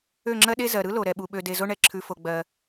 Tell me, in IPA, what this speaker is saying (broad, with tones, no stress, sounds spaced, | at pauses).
ø˦˨ ŋ͡ǁ ɜ˦ ɗ e˦ z ɜ˨ ɾ ɯ˦ l o˨ ɾ ɛ˨ ɓ u˨ ɓ ø˧ d e˧ z o˦ ɳ ɛ˧ ǁʰ ʉ˧ f o˧ ɡ͡b ɜ˧